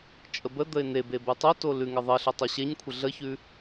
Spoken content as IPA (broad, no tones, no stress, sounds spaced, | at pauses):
t͡ʃʼ ə b ə d̪ ə ɪ̯ n e b e b ʉ tˤ o t o l ʉ ŋ ə ðˤ ə ɬ ə tˤ o ɕ e ɲ kʷʰ ə ɮ ə ç ʉ